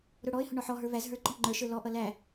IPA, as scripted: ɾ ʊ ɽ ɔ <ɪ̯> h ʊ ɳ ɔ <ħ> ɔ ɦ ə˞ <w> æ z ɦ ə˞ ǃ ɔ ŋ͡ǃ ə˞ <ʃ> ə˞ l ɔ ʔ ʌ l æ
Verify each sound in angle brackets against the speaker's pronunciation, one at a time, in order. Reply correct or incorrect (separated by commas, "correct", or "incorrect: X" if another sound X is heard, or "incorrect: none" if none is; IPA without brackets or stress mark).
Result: correct, correct, incorrect: v, correct